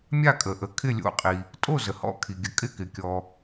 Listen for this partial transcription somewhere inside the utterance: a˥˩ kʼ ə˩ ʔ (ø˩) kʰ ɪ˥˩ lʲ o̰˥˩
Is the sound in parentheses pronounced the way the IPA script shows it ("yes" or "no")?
no